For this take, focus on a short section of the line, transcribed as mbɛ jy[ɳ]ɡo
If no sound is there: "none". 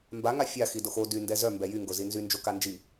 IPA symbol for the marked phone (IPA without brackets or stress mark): ŋ